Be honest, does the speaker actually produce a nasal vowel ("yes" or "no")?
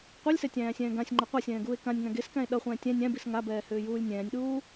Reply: yes